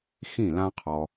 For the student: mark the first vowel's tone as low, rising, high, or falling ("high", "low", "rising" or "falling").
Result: falling